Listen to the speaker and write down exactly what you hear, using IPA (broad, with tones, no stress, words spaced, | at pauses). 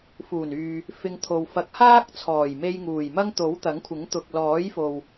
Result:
fuː˨˩nyː˨ | fɪ˧ŋt̪ʰo˨w fɐ˨˥k̚haː˥k̚t͡sʰɔː˨˩j me˧jŋuː˨˩jmɐ˥ŋt̪o˨˥w t̪ɐ˨˥ŋkʷʰɪ˨˥ŋ t̪ʊ˨k̚lɔː˨˥jfo˨w